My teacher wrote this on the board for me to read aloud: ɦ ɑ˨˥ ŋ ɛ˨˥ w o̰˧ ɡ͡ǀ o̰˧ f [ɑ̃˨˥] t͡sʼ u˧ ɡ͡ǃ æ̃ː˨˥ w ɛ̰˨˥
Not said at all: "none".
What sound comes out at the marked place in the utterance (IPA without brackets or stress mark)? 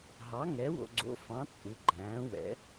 ɑ̃˨˥